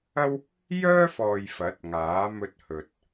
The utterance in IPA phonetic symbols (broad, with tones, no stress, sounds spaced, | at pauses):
ɐ˥ w | j œː˥ f ɔː˨ j f ɐ˨˥ t̚ ŋ aː˨˥ m ɵ˧ t̚ h ɵ˨ t̚